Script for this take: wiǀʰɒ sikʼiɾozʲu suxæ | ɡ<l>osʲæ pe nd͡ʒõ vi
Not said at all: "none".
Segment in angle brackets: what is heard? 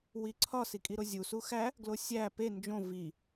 l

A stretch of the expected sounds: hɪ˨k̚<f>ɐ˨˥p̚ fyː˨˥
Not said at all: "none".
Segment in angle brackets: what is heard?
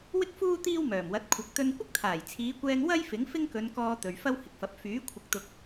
f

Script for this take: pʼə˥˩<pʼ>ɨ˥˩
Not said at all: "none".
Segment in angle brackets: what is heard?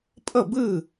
b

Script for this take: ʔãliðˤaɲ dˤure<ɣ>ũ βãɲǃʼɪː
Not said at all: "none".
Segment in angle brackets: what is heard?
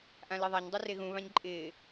ɣ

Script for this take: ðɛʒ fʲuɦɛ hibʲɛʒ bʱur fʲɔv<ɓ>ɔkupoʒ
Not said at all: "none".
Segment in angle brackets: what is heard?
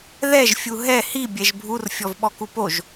ɓ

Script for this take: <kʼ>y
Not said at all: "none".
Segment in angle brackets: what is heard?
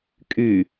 kʼ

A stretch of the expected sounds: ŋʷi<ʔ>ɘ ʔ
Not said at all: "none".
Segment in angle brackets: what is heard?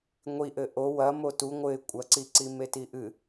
ʔ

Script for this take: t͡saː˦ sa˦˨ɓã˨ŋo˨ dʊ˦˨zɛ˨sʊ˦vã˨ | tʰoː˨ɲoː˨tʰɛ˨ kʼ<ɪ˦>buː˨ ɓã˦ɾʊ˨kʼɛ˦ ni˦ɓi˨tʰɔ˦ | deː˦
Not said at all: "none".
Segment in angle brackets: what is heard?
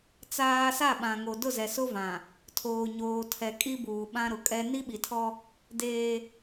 i˦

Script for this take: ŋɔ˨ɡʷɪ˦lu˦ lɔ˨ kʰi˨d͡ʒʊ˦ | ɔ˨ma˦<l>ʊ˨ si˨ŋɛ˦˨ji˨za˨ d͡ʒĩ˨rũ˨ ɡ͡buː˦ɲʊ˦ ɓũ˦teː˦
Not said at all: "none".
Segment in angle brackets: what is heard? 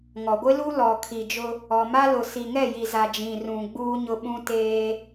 l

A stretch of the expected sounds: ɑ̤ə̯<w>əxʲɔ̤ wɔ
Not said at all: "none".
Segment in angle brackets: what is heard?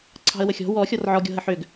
w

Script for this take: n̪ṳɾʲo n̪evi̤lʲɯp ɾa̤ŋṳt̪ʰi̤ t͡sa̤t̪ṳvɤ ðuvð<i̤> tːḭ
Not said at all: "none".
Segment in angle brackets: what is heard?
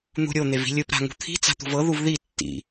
i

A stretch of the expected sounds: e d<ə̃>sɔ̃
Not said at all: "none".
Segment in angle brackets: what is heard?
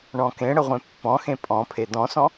ɔ̃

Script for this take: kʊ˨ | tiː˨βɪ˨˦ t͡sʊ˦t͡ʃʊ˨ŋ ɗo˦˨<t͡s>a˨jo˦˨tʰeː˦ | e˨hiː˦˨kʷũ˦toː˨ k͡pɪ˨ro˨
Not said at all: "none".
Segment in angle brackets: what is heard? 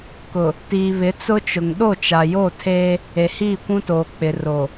t͡ʃ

